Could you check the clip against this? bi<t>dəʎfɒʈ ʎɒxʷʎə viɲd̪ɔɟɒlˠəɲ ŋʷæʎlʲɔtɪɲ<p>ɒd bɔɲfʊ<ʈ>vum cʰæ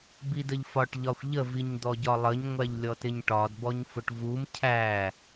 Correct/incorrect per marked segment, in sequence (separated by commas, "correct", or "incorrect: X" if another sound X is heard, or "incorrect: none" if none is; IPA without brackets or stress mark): incorrect: none, incorrect: ʈ, correct